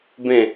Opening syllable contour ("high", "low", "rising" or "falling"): falling